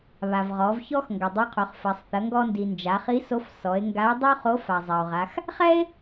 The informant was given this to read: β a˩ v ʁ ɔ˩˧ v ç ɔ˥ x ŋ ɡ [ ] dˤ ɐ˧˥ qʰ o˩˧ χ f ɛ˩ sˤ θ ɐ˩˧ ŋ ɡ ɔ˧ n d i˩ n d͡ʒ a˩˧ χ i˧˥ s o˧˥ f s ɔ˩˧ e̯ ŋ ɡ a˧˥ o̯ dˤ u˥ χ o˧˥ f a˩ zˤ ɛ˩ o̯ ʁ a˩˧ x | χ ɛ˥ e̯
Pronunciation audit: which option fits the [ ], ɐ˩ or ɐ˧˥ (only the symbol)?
ɐ˩